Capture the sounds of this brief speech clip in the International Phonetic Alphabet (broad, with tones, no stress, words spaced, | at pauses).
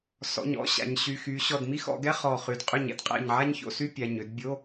sɔ̰˩˧˩ɲɔ̰˧˥˧ ɕa̰˩˧ɲ ɕy˩˧˩ xy˩˧ɕɔ˧˩dmi˥ xɔ̰˩˧ɡɛ˧˥˧ χɔ˧˩ χy˩˧dqʼʏ˧˩ɲ ɛ̰˥dqʼɛ̰˧˩ɲʕa˥ɲço̰˧˥˧ sy˥pʲa˩˧˩ɲø˩˥d bʲo˧˥˧